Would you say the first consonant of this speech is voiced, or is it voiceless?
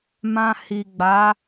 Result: voiced